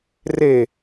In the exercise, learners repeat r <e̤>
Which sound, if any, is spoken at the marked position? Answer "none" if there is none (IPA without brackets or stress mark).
e